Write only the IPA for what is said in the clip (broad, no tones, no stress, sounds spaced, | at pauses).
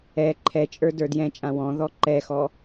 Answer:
ɛ ǃʰ ɛ t͡ʃʼ ə˞ d ə˞ d j ɛ̃ t͡ʃʼ ã w ɔ̃ ð ɔ ǃ ɛ x ɔ